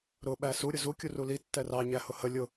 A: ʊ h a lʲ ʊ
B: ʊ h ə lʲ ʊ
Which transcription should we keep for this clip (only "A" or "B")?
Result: B